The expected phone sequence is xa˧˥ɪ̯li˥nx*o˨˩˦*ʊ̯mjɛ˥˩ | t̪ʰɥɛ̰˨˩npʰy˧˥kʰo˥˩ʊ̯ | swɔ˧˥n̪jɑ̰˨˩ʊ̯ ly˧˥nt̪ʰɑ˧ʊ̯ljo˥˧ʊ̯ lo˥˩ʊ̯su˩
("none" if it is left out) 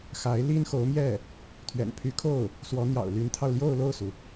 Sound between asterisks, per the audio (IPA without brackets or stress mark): o˧˥